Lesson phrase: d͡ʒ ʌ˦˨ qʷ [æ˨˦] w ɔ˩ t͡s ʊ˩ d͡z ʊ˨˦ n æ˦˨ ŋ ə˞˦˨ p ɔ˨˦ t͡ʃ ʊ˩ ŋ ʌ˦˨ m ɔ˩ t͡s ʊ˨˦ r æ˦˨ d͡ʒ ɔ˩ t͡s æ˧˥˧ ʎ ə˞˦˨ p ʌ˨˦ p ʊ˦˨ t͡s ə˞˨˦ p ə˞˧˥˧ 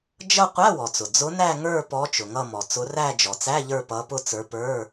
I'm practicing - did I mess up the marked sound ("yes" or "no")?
yes